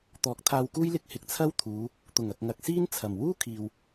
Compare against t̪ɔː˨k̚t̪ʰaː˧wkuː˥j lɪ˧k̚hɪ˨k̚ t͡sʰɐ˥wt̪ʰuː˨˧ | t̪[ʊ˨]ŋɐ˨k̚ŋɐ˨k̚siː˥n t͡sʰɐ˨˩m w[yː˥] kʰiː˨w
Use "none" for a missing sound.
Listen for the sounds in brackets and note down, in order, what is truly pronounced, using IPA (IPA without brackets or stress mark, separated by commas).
ʊ˨˩, uː˥